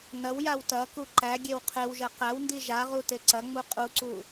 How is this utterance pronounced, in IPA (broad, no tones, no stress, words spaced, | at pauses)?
nɐwjaw tɐku ǃæɡʲew qʰewʒɐ qæwndi ʒaʁu teǀɐŋ͡mu qʼuǀu